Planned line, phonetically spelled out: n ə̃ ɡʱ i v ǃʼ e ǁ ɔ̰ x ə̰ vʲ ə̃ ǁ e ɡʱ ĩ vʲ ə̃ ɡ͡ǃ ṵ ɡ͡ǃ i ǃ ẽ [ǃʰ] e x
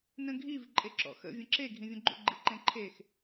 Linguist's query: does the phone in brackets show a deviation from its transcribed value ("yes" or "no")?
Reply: no